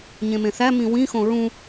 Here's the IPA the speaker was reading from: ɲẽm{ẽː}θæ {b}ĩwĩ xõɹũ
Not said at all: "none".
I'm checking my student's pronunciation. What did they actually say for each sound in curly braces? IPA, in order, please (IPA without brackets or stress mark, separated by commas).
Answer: ẽ, m